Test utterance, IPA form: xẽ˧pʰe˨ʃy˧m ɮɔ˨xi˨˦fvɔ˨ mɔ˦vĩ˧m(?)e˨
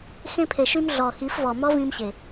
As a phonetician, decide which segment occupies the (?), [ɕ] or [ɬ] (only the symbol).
ɕ